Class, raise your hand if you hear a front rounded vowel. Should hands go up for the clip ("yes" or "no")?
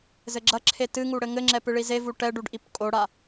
no